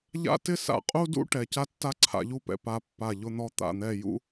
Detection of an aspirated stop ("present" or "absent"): present